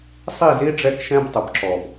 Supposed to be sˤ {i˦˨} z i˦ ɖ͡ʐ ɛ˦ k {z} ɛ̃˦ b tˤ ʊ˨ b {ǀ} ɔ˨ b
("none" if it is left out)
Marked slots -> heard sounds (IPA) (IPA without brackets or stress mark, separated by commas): i˦˨, ʃ, ǁ